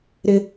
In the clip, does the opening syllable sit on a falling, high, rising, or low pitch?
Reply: high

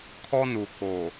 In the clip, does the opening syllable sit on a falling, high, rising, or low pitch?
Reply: high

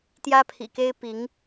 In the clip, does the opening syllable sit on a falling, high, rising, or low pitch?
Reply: high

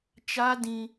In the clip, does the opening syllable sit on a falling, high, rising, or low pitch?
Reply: high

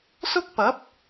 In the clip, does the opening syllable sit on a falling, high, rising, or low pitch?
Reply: high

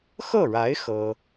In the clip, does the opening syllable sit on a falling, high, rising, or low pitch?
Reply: falling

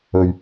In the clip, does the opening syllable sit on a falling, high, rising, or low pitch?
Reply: low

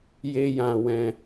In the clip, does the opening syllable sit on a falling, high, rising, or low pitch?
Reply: high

